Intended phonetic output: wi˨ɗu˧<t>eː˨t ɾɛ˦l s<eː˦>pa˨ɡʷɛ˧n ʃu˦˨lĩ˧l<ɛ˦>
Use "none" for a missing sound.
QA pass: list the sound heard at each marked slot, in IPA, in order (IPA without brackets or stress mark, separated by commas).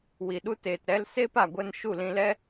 t, eː˦, ɛ˦